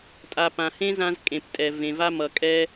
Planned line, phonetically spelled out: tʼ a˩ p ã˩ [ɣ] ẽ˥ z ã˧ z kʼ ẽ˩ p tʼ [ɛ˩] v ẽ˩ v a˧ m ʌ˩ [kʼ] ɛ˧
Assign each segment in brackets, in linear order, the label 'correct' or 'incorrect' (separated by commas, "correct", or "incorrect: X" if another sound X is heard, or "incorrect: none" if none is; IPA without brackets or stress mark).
incorrect: h, correct, correct